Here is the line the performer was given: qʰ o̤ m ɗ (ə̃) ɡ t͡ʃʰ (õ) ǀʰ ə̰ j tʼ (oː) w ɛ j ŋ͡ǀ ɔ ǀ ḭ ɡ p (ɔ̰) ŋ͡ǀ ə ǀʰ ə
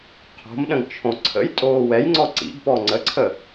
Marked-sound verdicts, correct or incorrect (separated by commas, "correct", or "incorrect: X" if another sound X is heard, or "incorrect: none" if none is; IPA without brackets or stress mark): correct, correct, correct, incorrect: ɔ